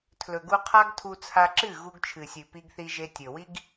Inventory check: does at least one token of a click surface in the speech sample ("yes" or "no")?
yes